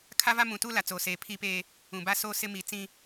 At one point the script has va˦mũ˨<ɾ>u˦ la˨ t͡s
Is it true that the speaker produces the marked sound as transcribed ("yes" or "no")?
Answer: no